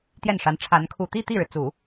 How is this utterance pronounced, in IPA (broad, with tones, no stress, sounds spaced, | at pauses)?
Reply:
t̪ j ɛ˥˩ n ʂ a˧˥ n ʈ͡ʂʰ a˧˥ n kʰ u˨˩ t̪ i˥˧ t̪ i˥˩ ɻ ɻ̩˩ t͡s u˨˩˦